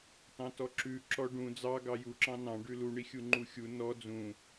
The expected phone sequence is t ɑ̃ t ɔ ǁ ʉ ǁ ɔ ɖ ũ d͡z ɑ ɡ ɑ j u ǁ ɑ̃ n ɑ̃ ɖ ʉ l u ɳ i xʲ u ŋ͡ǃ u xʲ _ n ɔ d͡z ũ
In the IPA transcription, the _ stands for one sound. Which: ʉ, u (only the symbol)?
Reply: u